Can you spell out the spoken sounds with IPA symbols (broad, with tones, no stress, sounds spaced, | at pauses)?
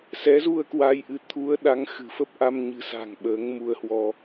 s ɛ˨˦ z u˧ ə̯ k w a˧ j ʔ ɨ˧ t̪ʰ u˨˦ ə̯ ɗ a˨˦ ŋ x ɨ̤˨˩ f ə˦˥ p̚ ʔ a˧ m ɲ ɨ̤˨˩ s a̤˨˩ ŋ ɓ əː˨˦ ŋ m u˧ ə̯ h w ɔ˧